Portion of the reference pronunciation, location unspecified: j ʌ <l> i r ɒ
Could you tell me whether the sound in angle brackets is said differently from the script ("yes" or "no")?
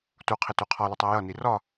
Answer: yes